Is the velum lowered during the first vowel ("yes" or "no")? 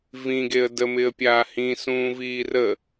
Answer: yes